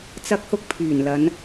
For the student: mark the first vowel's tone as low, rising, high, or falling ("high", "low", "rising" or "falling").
high